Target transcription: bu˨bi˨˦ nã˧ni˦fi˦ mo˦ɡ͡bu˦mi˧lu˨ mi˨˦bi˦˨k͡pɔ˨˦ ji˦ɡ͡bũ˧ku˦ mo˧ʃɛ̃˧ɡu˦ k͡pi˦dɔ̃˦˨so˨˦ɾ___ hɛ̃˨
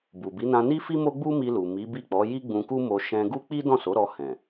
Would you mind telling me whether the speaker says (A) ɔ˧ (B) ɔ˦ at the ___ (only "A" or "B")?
A